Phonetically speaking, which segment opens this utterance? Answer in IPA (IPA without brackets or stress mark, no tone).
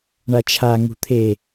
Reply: ɳ